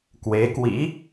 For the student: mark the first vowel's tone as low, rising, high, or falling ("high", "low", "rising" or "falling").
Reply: rising